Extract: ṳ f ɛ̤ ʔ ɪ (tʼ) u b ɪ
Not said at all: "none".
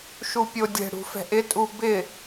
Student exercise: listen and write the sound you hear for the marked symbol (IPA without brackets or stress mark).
tʼ